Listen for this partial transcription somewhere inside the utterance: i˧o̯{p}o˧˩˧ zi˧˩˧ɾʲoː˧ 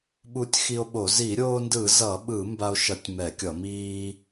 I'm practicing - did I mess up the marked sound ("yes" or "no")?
yes